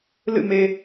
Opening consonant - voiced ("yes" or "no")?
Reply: yes